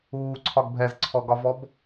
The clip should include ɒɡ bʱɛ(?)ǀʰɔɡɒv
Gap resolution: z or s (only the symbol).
z